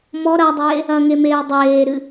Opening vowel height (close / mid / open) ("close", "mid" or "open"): mid